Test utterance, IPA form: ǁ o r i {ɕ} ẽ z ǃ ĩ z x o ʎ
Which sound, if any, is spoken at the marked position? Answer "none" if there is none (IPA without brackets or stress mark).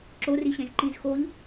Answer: ɕ